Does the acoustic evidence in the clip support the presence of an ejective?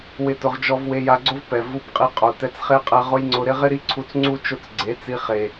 yes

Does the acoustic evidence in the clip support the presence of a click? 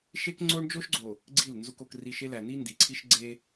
yes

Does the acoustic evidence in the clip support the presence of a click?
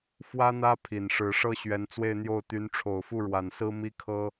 no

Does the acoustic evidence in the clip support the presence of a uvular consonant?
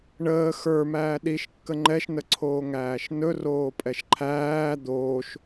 no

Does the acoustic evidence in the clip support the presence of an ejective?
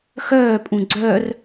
yes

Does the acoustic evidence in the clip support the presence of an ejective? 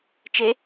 no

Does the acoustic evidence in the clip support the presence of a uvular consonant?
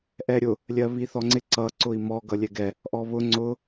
no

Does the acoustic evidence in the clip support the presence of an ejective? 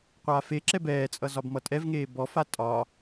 yes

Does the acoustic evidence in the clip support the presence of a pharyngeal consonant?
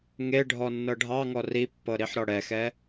yes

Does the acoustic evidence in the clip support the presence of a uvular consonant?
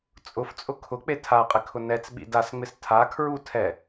yes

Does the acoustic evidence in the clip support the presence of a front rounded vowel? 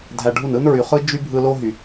yes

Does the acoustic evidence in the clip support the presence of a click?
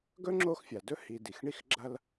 yes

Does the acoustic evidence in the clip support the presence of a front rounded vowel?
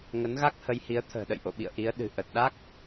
no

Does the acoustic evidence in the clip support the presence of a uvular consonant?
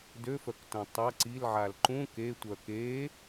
no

